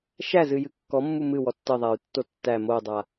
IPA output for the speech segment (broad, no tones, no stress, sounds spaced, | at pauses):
ʃ æ z ɨ j ɨ kː ɔ mː u m ɨ w ɔ tː ə ðˤ a y̯ tː o tː æ m o dˤ a